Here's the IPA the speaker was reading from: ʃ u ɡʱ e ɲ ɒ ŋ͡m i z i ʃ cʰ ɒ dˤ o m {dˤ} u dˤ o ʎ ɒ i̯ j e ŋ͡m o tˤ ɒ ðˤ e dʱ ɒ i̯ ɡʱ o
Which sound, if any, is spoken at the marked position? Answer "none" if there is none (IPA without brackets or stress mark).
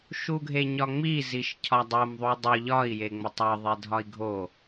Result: ðˤ